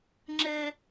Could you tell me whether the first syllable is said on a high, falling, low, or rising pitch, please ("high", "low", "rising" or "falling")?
high